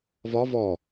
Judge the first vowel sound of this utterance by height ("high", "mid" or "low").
low